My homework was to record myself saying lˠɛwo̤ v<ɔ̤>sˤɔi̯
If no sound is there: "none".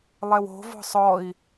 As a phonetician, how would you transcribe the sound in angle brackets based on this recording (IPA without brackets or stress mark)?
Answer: ɔ̤